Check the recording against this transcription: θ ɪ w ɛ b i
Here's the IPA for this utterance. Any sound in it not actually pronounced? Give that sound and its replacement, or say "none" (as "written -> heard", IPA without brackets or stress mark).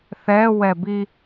ɪ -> ɛ